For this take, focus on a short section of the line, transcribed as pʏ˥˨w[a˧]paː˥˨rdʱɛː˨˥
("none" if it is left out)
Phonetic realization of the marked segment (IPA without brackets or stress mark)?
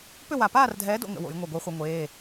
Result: a˧˩